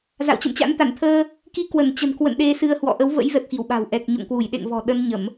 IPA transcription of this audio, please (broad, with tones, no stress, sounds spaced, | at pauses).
z a̰˧˨ w t͡ɕ ə̰˧˨ m t͡ɕ a̰˧˥ n t̪ a˧˩ n t̪ʰ əː˧ | k i˨˦ k w ə˧˩ n t͡ɕ ə̤˨˩ n k w ə̰˧˨ n ɗ e˧ s ɨ˧ ə̯ h w ɔ̰˧˨ ʔ ə˨˦ w v ə̰˧˥ j v ɛ˨˩ p̚ x i˧˩ w ɓ a̤˨˩ w ʔ ɛ˨˩ k̚ ɲ o̰˧˨ ŋ k w u˧˩ j ɗ ḛ˧˨ ŋ v ɔ̤˨˩ ɗ ə˧ n ɲ ə˧˩˨ m